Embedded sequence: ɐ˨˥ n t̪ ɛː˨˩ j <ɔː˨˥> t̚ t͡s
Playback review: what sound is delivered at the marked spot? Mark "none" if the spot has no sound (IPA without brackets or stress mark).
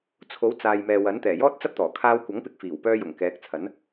ɔː˥